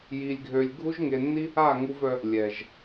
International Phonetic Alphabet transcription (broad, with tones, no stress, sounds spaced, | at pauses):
j i˧ lʲ ɡʱ ø˧ lʲ ɡʱ u˦ ʒ ŋ e˧ nː i˦ | a˦˨ ŋ u˧ v œ˦ | lʲ ɛ˨ ʒ